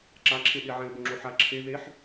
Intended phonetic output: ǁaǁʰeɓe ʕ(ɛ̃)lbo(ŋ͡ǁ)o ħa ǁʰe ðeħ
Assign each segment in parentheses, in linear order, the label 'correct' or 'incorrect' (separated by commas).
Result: correct, correct